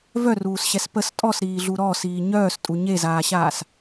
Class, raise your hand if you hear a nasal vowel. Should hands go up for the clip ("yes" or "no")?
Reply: no